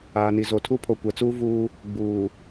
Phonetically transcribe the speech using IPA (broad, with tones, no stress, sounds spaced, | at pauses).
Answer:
aː˨ n i˨ z o˨ tʰ u˦ pʰ o˨ kʷ ɛ˨ t͡s uː˦ v uː˦ | ɡ͡b uː˨